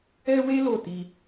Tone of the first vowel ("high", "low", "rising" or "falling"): high